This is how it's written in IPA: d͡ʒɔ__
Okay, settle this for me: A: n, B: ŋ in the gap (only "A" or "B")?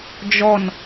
A